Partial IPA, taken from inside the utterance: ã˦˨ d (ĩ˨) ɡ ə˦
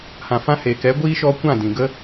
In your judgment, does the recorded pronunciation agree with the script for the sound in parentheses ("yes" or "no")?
yes